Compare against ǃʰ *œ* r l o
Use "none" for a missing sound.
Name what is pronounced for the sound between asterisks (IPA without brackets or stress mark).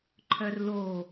œ